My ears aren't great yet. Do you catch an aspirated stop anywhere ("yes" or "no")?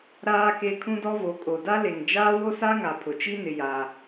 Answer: yes